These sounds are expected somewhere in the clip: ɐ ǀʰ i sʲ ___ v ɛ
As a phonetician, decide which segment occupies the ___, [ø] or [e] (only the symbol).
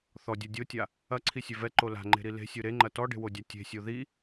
ø